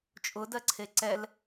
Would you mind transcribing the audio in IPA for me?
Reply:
t͡ʃʼ ʊ d ɜ ǀʰ e ǀ ɛ l

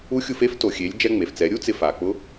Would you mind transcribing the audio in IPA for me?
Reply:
u˧˥ xʲ u˧ f e˥ f t o˩ xʲ e˩˧ lʲ d͡ʒ ɛ˧ ŋ͡m e˩ f t͡s ɛ˩˧ ɾʲ u˥ t͡s ɪ˧ f a˩ k͡p ʊ˧˥

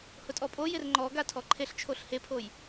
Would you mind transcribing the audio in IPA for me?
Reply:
h ʊ tʼ ɔ pʼ o j ɪ r ŋ͡ǃ ɔ ɡ a tʰ ɔ ǃʰ e ɬ t͡ʃʰ o ɬ h e pʰ o j

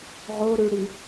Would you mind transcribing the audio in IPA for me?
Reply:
ʁ o ɾ ʉ ɽ i

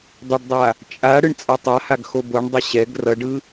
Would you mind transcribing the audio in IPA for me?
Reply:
dˤ e ɖ dˤ a | t͡ʃʼ a ɽ ɯ ɳ t͡sʼ a tˤ a h a ɡ x o b o ɳ dˤ ʌ ɕ ɛ ɡ r ʌ ɖ ɯ

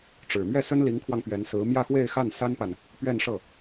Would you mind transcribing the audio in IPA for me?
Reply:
ʈ͡ʂ ɻ̩˨˩ m ɥ ɛ˥˩ s ə˥ n l i˧˥ ŋ kʰ w ɑ˧ ŋ p ɥ ɛ˧˥ n s ɹ̩˧˥ m j ä˥˧ x w e˥˧ ɪ̯ x a˥˩ n s a˥ n p a˨ n | p ɥ ɛ˥˧ n ʂ ɤ˥˩

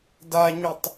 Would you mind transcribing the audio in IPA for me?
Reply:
d a ɲ ɵ tˤ

